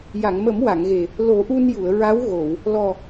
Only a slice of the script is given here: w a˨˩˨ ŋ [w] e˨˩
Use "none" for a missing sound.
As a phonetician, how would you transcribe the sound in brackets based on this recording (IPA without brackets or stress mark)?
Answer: ɣ